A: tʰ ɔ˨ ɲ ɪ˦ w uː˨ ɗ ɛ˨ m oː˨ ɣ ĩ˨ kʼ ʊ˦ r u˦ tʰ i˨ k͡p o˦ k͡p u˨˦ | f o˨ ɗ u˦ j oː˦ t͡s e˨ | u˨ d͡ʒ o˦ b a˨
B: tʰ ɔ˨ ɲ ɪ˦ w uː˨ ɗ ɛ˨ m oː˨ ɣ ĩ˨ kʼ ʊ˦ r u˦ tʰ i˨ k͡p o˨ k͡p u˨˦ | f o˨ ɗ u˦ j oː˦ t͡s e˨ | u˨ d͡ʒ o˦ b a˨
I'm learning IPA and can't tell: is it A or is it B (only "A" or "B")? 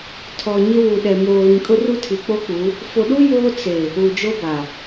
A